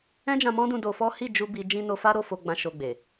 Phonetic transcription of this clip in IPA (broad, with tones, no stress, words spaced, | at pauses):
ɛ̃˦d͡ʒã˧mɔ̃˦dũ˧ do˧fɔ˦ hi˦˨d͡ʒu˧ bi˧ d͡ʒĩ˧no˧fa˦ɾo˦˨ fo˧ɡ͡bã˧ ʃo˧ɡ͡be˨